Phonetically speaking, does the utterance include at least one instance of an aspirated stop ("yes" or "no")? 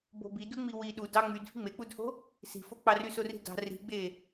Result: no